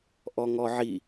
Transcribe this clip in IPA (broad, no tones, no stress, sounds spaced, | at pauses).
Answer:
ʔ ɔ ŋ ɔ ʕ i